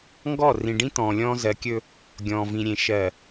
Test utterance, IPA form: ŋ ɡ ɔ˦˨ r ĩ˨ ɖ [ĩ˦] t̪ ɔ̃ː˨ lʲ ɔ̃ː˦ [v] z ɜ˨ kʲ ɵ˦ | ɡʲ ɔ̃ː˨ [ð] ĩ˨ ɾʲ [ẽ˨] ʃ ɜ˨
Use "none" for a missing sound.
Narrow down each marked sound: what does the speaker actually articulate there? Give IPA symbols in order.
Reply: ĩ˦, none, v, ẽ˨

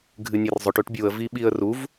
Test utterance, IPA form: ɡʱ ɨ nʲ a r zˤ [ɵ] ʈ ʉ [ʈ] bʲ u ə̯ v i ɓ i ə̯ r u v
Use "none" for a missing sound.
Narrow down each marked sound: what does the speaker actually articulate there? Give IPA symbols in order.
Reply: ɵ, ʈ

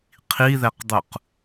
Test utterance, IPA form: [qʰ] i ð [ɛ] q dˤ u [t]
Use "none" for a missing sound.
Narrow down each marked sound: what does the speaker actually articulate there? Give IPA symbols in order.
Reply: qʰ, ɛ, q

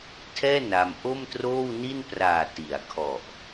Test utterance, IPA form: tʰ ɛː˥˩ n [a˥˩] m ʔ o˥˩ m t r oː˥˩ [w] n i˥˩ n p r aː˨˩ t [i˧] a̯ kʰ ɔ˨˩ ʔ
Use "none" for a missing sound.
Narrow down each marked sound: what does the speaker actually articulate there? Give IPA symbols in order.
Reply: a˧, w, i˩˦

